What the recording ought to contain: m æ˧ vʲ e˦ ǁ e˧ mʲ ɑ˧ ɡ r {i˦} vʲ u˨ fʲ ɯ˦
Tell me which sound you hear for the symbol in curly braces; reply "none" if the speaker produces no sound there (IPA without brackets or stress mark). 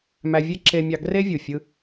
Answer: e˦